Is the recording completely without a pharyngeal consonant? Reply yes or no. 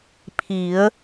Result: yes